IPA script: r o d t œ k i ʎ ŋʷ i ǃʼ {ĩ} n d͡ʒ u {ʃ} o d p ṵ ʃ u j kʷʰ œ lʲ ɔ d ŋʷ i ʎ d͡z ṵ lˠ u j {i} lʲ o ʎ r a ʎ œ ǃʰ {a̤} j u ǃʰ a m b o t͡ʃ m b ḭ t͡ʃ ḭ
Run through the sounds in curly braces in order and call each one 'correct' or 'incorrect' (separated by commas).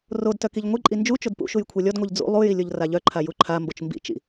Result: incorrect, incorrect, correct, incorrect